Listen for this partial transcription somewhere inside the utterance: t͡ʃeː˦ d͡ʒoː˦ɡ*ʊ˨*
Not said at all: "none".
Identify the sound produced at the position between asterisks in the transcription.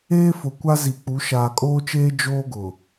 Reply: ʊ˨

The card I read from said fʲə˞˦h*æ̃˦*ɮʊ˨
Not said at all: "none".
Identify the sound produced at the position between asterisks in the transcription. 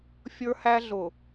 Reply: æ˦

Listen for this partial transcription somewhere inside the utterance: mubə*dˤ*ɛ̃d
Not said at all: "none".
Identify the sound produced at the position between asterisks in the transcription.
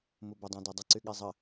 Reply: dˤ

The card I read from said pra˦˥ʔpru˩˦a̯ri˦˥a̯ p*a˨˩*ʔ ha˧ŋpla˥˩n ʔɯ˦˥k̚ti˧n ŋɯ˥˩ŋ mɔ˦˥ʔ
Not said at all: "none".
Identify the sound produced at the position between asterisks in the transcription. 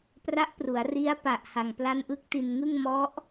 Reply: a˨˩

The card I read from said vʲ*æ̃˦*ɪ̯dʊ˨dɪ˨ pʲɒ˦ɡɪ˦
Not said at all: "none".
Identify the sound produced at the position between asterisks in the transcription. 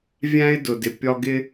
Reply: æ̃˦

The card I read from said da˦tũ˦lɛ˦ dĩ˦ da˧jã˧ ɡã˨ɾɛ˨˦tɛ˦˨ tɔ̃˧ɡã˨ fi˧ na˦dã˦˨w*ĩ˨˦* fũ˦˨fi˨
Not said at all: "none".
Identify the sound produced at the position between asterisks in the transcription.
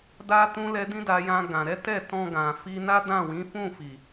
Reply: ĩ˨˦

